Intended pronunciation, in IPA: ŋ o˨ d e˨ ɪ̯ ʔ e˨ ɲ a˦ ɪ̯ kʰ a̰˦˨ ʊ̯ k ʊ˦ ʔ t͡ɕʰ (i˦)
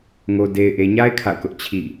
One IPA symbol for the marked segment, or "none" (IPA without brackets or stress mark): ḭ˦˨